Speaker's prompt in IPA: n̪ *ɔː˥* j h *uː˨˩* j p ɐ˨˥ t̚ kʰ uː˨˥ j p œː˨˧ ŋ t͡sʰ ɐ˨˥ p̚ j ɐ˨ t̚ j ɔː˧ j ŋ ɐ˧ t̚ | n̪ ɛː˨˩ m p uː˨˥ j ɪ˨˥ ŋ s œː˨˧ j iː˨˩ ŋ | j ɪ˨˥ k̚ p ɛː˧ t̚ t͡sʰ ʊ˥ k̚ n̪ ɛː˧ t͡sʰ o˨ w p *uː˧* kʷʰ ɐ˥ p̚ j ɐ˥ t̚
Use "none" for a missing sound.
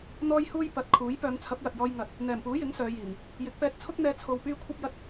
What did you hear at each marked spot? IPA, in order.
ɔː˥, uː˥, yː˧

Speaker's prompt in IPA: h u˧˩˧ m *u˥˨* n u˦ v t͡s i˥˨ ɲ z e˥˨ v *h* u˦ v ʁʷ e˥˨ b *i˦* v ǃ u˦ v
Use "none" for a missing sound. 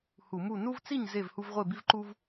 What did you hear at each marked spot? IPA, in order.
u˥˨, h, i˦

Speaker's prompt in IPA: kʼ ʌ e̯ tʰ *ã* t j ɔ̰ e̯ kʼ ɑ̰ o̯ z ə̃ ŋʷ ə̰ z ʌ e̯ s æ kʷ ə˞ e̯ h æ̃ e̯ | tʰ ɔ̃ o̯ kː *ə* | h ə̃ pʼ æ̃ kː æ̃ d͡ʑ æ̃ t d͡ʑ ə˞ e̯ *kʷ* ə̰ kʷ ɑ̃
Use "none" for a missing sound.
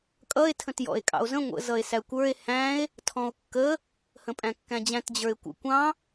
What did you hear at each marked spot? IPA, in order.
ə̃, ə, kʷ

